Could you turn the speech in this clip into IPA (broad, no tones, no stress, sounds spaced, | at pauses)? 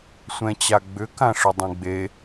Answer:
sʷ ɛ̃ t͡ɕ a ɡ͡b ʏ k ã ʂ ʏ dˤ ẽ ɡ͡b e